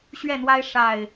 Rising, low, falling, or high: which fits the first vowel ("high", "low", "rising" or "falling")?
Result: falling